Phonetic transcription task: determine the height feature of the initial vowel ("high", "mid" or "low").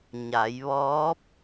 low